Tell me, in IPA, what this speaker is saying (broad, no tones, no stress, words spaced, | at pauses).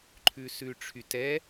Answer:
ǃʰʉsʉʈ͡ʂʰytɛ